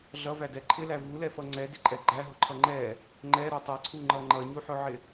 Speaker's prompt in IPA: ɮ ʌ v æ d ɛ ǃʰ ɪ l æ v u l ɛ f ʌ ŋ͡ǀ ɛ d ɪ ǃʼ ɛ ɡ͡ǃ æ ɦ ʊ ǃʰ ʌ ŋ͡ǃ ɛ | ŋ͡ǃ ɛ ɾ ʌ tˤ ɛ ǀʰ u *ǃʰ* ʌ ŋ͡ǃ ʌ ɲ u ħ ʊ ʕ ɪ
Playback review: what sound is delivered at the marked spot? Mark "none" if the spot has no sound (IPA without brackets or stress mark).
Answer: ŋ͡ǃ